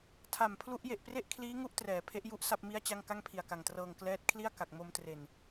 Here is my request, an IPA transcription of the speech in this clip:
tʰ a˨˩ m pʰ l u˦˥ ʔ j e˨˩ ʔ p r e˥˩ ʔ kʰ l iː˦˥ ŋ u˦˥ ʔ t r ɛː˩˦ pʰ e˦˥ ʔ j u˥˩ ʔ s a˥˩ p̚ m i˥˩ a̯ t͡ɕ a˥˩ ŋ k a˥˩ ŋ pʰ i˨˩ a̯ k a˨˩ ŋ t r ɤː˧ ŋ k l ɛː˦˥ t̚ kʰ l i˥˩ a̯ k a˨˩ k̚ m o˧ m t r e˨˩ n

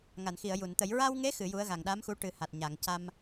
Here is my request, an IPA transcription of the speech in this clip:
ŋ a˨˩˨ n x i˨˩˨ ə̯ j u˨˩˨ n t̪ ə˨˩˦ j ɹ a˧ w ŋ e˧˥ x ɨ˨˩˦ j u˧˥ ə̯ ɣ a˨˩ ŋ ɗ a˧˥ m x u˧˥ ʈ ɨ˨˩˦ h a˨˩ t̚ ɲ a˨˩˨ ŋ c a˧ m

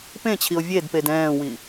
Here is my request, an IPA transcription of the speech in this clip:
p ẽ t͡ɕʰ i o̯ vʲ e d p e d ɛ̃ː w i

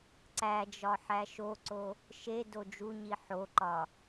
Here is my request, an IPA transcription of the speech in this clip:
ǀ æ d͡ʒ ɒ ħ æ ʃ o ǀ o | ʃ e d o d͡ʒ u ɲ i ħ o ǃ ɒ

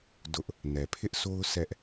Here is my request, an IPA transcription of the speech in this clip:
d ʊ˦ ʔ | n ɛ˨ pʰ ɪ˦ ʔ s o˦ ʊ̯ s ɛ˦ ʔ

